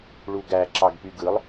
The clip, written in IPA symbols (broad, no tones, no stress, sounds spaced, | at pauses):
ɭ u ɡ æ ǁ ɑ ɡ p y ɡ ɯ lˠ